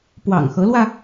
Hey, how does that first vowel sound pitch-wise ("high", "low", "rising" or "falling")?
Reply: low